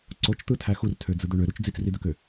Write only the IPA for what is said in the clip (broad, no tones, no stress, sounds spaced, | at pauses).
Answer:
ǀ o t͡ʃ t̪ ɯ tʰ æ x u r tʰ ø d͡z ɯ d̪ ø ɳ ø ɾ u t͡ʃ d͡z i t͡s r i d̪ ø k ø